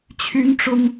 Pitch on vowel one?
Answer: high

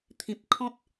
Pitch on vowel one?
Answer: low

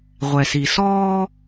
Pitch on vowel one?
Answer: low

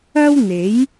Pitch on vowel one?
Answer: high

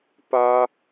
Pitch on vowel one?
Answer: high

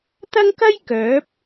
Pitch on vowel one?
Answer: high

